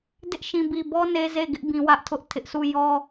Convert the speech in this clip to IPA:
d ɪ˦ ʔ ʃ ĩ˨ b i˨ b ɔ˦ n e˦ z e˦˨ ɡ ɪ˦ ʔ b ĩ˨ w ä˦ ʔ tʰ ʊ˦ ʔ tʰ ɪ˦ ʔ sʰ u˦˨ j ɔ˦

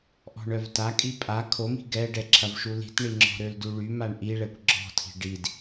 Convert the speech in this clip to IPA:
ʔ ɔ̤ ɳ œ v t a kʼ i pʼ a kʰ o m i̤ ɡ ɛ ɖ ɛ ǁʰ ɐ v ʃ u l i̤ t ɳ i ŋ͡ǁ ɔ̤ ɾ ø l d u ɭ y m a ɳ ʔ i ɭ ɛ kʷ ɡ͡ǁ ɔ̤ tʰ i̤ ɖ i d

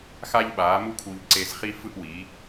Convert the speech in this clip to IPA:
x a˦ ʎ ɓ aː˨˦ m u˦ kʰ u˧ ʎ ǀ e˧ z χ i˦ f ɯ˦ ʔ w i˨˦

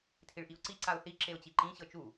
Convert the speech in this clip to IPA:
tʰ i ɭ ʔ i ʊ̯ ǀ i ǀ a ʊ̯ θ i ǁ e ʊ̯ t͡ɕ i ǃ ĩ ɕ ɤ t͡ʃ u

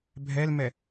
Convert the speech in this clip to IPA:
bʱ ɛ l m ɛ

